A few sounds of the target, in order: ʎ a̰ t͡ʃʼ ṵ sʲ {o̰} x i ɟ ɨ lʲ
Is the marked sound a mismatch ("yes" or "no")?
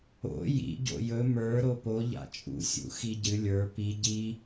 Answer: yes